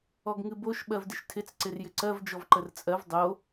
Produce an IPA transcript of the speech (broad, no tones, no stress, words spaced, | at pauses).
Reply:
ɔɡŋɨboʃ ɓɜvdɪʃtʰɪt͡s ǀɪrjɪǀɜv d͡ʒɔvǃərt͡sʼɜv dˤo